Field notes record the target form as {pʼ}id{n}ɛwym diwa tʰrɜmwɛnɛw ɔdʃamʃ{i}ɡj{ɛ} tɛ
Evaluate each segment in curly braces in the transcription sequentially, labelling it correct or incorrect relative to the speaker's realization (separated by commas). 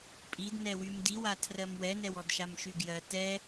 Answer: correct, correct, incorrect, incorrect